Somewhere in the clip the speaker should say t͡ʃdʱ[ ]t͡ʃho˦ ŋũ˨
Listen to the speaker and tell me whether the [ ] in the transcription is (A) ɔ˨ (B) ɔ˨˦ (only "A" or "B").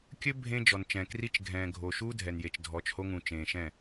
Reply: B